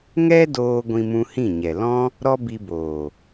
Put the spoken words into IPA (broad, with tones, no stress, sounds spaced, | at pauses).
ŋ ɛ˦ d oː˧ ɡʷ ĩ˧ m ũ˧ h ĩ˦˨ ɲ ɛ˨ l ɔ̃˦ | ɾ ɔ˦ b i˧ b oː˨